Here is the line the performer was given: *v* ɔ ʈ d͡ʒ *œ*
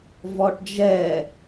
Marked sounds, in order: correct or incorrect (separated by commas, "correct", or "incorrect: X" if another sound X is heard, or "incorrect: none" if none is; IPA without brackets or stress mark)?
correct, incorrect: ɛ